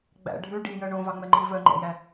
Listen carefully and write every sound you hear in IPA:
ɡ͡bæ̰ ɖʱʉ ɖijœ ɳõvɑŋ͡mɛŋ͡ǃi vœŋ͡ǃɛ̰jæ

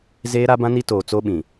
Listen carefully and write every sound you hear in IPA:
zeː˦ɾa˦bã˦ ni˦toː˨t͡so˦ɓĩ˨

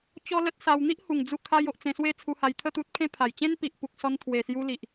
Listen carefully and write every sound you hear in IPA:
t͡ɕɔ˦lə˦t̚sa˧w n̪i˦ʔhu˨˩ŋ d͡zu˧kʰa˧jo˨ʔ t͡sẽ˧swe˦ t͡sʰu˧ha˧j t̪ʰə˥˧t̪u˦t̚pʰẽ˦ pʰa˨˩j t͡ɕẽ˦npi˨ʔ pu˨k̚sɔ˧n t̪ʰwe˨˩sju˧li˨ʔ

